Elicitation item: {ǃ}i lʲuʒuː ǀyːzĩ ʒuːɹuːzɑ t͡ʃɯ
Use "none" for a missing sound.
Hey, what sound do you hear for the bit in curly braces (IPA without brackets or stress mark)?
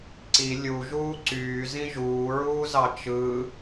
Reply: ǀ